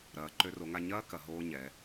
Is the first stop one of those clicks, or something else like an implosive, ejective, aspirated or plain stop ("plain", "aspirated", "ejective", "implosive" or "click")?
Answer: click